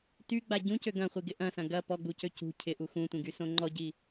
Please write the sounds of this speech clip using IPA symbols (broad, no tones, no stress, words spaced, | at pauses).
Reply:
tyɡ͡ba ɟũcø ɡɐ̃χʷiɡɪ ʔɐ̃sɐ̃ ɡɐ pɔɡ͡bucø cṳ cʰɪʔu xũtʷĩɡysõ ŋ͡ǃɔɟi